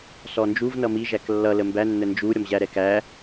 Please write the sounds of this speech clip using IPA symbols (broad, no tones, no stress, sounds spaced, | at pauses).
s ɔ n d͡ʒ u v n ʌ m i ʒ æ k lː ʌ l ə m b æ nː ə n d͡ʒ u ɾʲ ɔ m ʑ æ ɾ ɛ k æ